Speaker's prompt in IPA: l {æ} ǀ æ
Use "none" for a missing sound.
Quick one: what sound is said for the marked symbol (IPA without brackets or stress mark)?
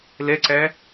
ɛ